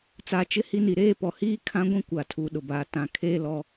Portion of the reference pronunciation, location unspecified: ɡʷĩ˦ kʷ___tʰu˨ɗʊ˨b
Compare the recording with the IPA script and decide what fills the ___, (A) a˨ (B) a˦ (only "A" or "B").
A